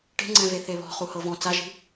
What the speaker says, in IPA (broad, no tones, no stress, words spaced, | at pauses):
ʈe̤ŋ͡ǀɛ̃ve θeβɔ̤ χuhɤvɔ̃ t͡saʒi̤